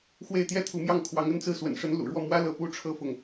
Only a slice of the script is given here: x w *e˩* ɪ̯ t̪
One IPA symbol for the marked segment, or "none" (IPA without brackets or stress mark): e˥˧